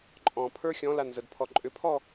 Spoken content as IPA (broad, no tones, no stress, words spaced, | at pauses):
ǃʼɔ̃pʰə˞ xʲɔ̃lanzədpʰɔ ǃʼʏpʰɔ